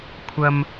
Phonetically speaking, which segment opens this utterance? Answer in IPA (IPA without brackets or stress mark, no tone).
kʷʰ